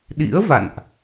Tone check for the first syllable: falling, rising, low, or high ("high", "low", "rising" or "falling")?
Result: rising